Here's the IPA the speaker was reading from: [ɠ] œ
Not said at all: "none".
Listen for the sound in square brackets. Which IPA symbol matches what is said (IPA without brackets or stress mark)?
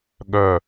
ɠ